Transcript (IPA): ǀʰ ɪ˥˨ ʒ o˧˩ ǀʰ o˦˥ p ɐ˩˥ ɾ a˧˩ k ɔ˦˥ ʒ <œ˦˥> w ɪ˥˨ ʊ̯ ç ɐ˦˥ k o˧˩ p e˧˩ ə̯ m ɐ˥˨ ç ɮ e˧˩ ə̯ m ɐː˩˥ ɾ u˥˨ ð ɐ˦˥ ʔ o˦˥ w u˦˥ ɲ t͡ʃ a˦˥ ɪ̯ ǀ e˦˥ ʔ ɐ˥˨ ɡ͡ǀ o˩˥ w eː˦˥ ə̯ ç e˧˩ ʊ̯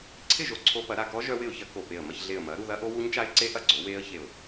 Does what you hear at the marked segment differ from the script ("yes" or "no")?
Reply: no